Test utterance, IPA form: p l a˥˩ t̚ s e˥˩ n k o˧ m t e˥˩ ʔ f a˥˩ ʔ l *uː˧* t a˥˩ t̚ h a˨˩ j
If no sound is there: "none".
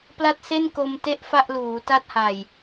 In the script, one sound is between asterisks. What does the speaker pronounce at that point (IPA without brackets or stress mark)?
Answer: uː˩˦